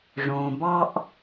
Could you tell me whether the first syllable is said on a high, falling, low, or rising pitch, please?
low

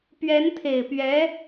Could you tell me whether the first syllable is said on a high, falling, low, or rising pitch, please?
rising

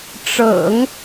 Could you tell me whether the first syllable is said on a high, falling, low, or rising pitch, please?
low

